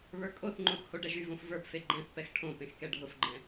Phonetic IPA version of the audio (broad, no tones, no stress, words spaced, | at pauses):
βə˞kʼoθŋ͡ǃõx hoɖɛʒyvõf və˞pfe ɡ͡ǃɛ̃θpɛx ʈʰõ pẽxkɛɖʱʊfɡ͡ǃɛ̃